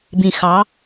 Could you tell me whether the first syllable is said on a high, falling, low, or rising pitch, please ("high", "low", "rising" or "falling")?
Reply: low